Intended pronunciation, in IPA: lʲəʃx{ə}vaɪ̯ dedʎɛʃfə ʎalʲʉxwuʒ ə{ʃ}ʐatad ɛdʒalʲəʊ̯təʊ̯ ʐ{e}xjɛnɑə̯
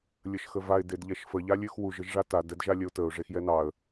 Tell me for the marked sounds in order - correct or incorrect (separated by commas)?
correct, incorrect, correct